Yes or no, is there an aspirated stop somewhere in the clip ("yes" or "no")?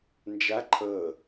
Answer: yes